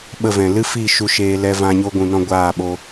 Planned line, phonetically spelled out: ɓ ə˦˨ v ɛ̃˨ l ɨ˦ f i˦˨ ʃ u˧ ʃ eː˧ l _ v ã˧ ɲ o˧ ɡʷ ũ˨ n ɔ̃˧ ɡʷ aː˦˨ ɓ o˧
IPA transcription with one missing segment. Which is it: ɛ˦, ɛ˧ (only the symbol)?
ɛ˧